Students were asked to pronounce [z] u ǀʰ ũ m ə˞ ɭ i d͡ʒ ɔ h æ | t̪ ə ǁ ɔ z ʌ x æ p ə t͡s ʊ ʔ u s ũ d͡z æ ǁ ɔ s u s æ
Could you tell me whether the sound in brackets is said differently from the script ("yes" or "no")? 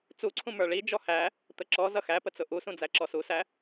yes